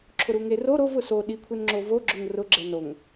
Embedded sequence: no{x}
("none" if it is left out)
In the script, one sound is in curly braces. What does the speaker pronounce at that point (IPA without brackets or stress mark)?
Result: ŋ